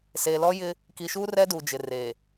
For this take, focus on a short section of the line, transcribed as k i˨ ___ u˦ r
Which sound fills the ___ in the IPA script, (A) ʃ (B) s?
A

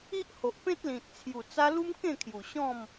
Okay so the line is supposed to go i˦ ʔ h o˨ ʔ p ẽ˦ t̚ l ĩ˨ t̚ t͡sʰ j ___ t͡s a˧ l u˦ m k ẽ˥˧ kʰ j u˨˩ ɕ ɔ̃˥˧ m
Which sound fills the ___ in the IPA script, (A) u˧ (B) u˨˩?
B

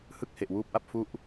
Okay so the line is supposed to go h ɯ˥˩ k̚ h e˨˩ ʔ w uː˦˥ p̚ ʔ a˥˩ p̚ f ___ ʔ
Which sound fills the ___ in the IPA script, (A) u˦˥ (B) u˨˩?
A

